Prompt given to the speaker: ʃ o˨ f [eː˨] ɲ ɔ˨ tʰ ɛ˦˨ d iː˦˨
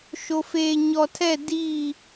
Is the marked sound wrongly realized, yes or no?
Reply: no